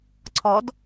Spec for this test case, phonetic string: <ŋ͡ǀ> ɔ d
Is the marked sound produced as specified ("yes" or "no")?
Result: no